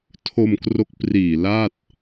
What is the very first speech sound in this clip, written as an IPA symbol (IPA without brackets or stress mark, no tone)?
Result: tʰ